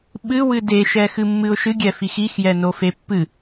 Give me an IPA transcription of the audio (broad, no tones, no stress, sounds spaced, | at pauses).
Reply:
ɓ ɨ w ɨ d e ʃ ɛ x ɨ mː ɨ ʊ̯ ʃ ɨ ɡʲ ɛ f i x i x j ɛ n o f e pː ɨ